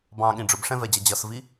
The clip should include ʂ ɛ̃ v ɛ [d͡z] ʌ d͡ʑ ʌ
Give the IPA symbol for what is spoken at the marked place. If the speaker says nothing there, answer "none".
d͡ʑ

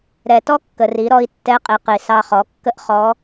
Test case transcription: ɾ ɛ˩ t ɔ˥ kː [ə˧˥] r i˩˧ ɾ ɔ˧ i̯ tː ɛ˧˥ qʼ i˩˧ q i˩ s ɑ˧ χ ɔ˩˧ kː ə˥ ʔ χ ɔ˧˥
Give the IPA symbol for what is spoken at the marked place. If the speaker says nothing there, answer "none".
ə˩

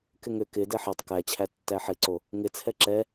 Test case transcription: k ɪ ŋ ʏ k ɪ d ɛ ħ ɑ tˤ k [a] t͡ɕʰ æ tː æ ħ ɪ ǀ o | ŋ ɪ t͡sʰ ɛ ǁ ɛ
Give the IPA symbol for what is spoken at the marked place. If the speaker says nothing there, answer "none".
æ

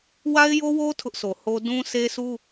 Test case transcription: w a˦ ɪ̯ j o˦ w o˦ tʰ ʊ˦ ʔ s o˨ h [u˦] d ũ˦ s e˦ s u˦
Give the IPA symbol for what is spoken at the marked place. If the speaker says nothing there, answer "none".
o˦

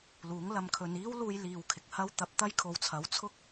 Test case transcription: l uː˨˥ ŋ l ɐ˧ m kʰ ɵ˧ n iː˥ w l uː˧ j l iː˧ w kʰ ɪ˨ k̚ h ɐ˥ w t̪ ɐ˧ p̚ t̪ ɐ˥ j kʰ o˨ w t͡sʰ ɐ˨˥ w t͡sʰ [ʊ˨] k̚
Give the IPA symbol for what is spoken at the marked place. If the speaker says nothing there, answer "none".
ʊ˥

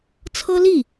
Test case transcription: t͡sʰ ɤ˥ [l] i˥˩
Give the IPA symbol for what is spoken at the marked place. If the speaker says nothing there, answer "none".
l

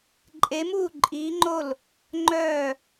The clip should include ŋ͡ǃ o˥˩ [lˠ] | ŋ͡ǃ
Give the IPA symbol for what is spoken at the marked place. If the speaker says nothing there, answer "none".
l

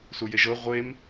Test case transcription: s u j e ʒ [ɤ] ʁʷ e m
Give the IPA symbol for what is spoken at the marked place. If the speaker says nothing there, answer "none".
ɤ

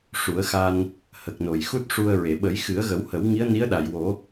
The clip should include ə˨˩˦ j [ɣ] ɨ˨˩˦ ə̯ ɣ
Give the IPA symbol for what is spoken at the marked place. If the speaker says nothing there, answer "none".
x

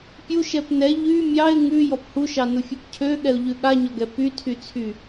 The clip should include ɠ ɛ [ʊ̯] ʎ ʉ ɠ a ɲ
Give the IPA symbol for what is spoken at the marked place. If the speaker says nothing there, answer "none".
ʊ̯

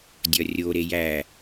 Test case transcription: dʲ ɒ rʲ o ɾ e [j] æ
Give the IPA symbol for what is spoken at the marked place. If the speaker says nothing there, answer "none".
j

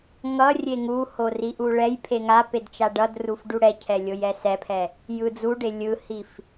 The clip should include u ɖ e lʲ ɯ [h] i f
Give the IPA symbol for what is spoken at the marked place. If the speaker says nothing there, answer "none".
h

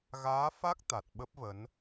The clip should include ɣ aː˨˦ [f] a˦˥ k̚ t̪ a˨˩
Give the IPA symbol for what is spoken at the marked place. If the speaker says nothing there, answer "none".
f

